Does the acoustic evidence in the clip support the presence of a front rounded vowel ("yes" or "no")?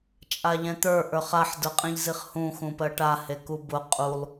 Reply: no